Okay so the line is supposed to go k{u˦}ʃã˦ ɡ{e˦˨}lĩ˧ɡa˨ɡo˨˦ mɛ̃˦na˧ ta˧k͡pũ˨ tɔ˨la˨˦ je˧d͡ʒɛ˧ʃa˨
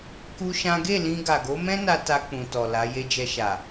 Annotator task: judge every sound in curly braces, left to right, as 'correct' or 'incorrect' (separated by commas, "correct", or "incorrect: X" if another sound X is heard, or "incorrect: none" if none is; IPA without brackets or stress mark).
correct, correct